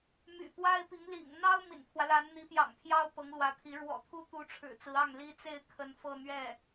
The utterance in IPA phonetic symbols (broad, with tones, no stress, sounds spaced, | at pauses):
m y̰˨˩ p w a˥ ɪ̯ p i˧˥ ŋ l ḭ˨˩ ŋ n̪ ɑ˥ ʊ̯ m ḭ˨˩ n pʰ w ä˦ l a˧˥ n n̪ i˧˥ p j ɑ̰˨˩ ŋ pʰ j ɑ˥ ʊ̯ p ɤ˧˥ ŋ l w ä˧˥ t̪ʰ i˧˥ ɻ w ɔ̰˨˩ t̪ʰ u˥ t̪ u˧˥ ʈ͡ʂʰ ɻ̩˨˩ t͡s ɹ̩˧˥ ɑ˥˩ ŋ l i˥ t͡s e˥˩ ɪ̯ kʰ ə˧˥ n f ɤ˥˧ n̪ ɥ ɛ˥˩